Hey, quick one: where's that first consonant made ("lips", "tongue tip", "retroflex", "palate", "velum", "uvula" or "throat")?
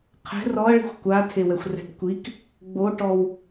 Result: uvula